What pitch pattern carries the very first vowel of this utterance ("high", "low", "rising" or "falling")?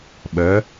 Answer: rising